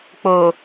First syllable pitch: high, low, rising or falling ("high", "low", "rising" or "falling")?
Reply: low